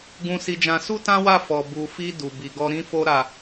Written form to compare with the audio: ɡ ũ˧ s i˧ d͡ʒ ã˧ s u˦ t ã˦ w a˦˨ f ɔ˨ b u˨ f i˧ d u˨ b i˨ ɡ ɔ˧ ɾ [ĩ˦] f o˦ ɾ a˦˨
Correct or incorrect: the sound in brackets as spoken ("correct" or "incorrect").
correct